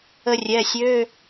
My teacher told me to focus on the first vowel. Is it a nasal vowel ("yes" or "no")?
no